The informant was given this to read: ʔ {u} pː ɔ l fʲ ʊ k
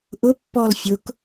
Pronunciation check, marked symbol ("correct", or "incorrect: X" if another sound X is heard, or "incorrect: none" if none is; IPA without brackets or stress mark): incorrect: ʊ